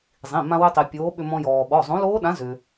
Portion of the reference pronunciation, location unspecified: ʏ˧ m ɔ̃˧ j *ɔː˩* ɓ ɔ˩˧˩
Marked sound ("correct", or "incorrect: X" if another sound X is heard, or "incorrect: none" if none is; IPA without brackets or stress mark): correct